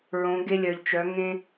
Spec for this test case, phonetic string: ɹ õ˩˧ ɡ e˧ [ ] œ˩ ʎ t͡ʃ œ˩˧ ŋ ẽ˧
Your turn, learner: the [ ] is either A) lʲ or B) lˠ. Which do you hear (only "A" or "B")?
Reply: A